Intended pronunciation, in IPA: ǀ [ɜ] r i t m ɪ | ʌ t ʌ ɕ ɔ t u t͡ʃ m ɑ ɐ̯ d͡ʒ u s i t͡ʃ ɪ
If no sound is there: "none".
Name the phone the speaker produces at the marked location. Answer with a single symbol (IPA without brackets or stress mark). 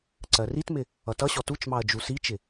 ɜ